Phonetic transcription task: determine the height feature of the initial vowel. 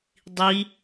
high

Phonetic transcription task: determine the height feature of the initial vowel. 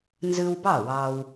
high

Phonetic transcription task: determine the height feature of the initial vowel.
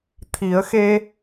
high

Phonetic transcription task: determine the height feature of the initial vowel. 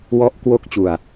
mid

